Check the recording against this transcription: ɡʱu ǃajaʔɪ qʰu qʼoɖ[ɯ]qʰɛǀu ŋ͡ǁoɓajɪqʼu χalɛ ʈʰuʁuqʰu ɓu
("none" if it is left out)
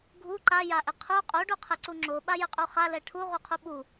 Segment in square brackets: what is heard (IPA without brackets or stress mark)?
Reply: u